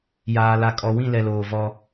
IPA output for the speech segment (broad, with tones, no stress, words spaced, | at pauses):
jaː˨la˨kʼɔ˨ wĩ˦˨lɛ˨loː˨ vɔ˦